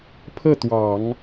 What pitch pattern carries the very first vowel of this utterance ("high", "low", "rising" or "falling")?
falling